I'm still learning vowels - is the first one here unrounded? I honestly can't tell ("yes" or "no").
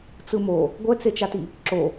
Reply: yes